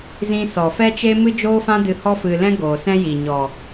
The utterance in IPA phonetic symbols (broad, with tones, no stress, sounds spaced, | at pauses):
z ĩ˧ s ɔ˨ f ɛ˦ t͡ʃ e˦ m ɨ˦ d͡ʒ oː˦ f ã˦ d ɨ˧ h ɔ˦ f ɨ˧ l ɛ̃˦ ɡ oː˨ s ɛ̃˦ j iː˨ ɲ ɔ˨